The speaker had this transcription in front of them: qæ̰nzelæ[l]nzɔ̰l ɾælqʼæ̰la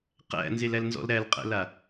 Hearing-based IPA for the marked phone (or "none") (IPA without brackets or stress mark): l